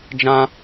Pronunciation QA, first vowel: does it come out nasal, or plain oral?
nasal